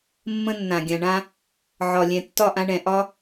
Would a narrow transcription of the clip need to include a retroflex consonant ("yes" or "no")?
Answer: yes